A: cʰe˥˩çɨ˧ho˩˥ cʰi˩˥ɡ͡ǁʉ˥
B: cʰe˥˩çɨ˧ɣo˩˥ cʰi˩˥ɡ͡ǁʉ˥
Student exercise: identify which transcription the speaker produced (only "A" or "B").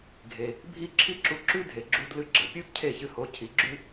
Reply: A